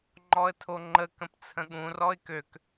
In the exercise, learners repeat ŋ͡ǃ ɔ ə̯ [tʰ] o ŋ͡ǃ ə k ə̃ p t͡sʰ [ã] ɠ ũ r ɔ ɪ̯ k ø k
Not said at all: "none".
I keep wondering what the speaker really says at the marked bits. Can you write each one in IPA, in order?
tʰ, ə̃

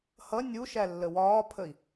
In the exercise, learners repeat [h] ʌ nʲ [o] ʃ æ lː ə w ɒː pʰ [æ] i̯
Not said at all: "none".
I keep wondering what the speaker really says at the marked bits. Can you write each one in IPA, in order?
h, u, ə

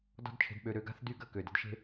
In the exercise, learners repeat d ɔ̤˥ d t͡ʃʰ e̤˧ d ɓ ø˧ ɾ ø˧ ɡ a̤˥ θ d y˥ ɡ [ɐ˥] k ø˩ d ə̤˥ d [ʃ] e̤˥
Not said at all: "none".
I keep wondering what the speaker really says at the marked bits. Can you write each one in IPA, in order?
ɐ˥, ʃ

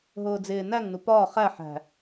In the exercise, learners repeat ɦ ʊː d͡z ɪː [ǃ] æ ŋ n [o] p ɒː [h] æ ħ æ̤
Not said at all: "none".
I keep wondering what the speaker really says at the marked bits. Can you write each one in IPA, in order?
n, u, χ

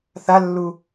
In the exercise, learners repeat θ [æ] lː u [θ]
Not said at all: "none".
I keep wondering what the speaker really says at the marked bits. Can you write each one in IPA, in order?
a, none

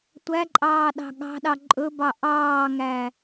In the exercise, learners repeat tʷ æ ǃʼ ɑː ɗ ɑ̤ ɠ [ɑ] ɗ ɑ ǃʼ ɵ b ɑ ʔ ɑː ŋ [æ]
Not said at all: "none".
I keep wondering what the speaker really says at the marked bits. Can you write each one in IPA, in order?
ɑ̤, æ

